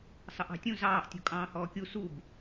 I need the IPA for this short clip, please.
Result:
sˤ ə ʔ ɑ̤ tʲ ũ z ɑː ʔ tʲ ṳ kʼ ɑ̃ː h ɔː kʲ u s u b

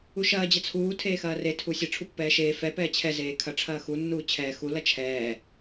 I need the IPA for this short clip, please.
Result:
u ʃ ɐː d͡ʑ ɐ t͡sʰ uː tʰ eː x ɐː r e tʰ u sʲ ɐ ʈ͡ʂʰ u pː ɛː ʃ eː f ɛ p ɛː t͡ɕʰ ɛ z eː kʰ ɐ ʈ͡ʂʰ ɐː x u nː uː t͡ɕʰ ɛː x u l ɐ t͡ʃʰ ɛː

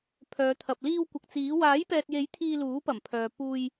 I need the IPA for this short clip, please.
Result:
pʰ œː˨˧ t̪ʰ ɐ˨ p̚ l iː˧ w kʷ ɐ˨ k̚ t͡s iː˨˥ w aː˨˥ j p ɛː˨ t̚ j e˨˥ j t̪ʰ iː˧ l uː˨˥ p ɐ˨˩ m pʰ œː˨ p uː˧ j

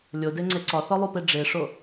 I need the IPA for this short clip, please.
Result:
lʲ o d e ŋ͡ǀ e ǀ ɒ θ ɒ lˠ u p e ɖ͡ʐ e ʂ o

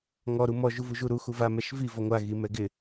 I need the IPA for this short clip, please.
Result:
ŋ ɔ ɾ u m ɔ ʒ u v u ʒ u ɾ u x u v a m ɛ ʃ v i v ɔ ŋʷ a ɣ i m ɛ ɡ ɪ

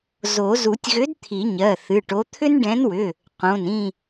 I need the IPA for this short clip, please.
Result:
z o˨˩˦ z u˨˩˦ tʲ ɣ ʏ˨˥ d t̪ʰ i˨˩˦ ɲ ɜ˩˧˩ θ ɨ˩˧˩ ʈ o˨˥ t̪ʰ ʏ˦ n ɖ ɛ̃˨˥ n w ʏ˩˧˩ | q õ˩˧˩ n ĩ˦˨

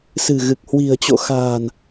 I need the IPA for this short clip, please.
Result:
s ɨ̤˨˩ ɣ ɨ˨˩ k̚ h w i̤˨˩ ə̯ t͡ɕ o̰˧˨ x a̤ː˨˩ n

